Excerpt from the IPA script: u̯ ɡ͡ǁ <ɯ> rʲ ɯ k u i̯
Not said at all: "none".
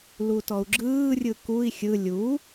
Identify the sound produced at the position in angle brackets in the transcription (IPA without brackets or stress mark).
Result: ɯː